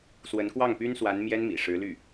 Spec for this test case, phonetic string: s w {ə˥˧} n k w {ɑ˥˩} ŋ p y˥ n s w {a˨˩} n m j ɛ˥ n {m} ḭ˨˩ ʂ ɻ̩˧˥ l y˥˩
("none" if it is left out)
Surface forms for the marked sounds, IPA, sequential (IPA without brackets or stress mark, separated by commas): ə˧˥, ɑ˥˩, a˧˥, m